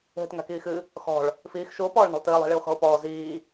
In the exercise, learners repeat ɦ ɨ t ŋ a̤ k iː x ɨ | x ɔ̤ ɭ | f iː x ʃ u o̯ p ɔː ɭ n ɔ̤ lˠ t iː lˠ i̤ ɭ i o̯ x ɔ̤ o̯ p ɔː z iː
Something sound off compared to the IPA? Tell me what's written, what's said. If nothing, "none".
none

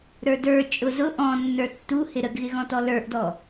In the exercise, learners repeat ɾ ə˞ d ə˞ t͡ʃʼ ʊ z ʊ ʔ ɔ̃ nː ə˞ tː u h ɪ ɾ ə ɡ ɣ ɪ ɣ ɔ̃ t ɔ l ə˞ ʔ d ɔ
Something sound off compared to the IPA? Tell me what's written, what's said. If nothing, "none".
none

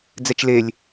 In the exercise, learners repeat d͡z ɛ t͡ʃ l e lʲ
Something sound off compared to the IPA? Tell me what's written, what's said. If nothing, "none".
none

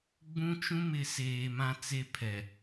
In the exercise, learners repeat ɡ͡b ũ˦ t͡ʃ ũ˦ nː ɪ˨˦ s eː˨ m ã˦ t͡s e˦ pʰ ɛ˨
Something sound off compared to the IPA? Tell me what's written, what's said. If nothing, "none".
nː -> m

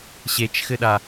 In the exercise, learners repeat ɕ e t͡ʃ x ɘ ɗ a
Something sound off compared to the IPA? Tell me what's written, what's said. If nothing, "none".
none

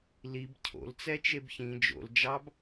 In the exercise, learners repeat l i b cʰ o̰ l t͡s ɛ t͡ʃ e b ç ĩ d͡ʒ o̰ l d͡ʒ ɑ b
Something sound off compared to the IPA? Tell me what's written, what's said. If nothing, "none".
none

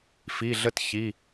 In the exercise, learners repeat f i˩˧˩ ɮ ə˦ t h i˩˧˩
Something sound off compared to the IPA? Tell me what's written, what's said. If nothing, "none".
h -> ç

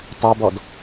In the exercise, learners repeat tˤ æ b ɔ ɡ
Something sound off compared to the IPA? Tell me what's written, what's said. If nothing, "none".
ɡ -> d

